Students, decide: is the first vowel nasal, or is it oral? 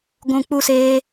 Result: nasal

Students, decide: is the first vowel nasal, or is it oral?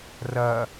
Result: oral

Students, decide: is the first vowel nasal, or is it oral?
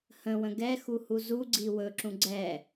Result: nasal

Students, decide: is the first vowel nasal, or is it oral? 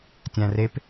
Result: nasal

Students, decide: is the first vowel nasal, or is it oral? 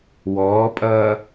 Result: oral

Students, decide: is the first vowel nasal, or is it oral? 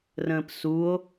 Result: nasal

